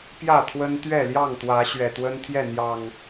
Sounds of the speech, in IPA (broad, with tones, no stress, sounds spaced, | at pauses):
p j ä˥˨ t̪ʰ w ə˦ n t̪ ɥ ɛ˥˨ l j ɑ˥˨ ŋ t̪ w ä˨˦ ɕ ɥ ɛ˨˩ t̪ w ə˦ n t̪ʰ j ɛ˥˨ n̪ j ɑ˨˩ ŋ